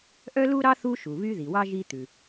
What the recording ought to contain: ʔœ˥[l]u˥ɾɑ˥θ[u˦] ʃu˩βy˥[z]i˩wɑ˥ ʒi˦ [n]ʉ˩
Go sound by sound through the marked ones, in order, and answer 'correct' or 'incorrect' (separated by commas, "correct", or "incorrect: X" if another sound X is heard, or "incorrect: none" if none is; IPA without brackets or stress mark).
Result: correct, correct, incorrect: ð, incorrect: t̪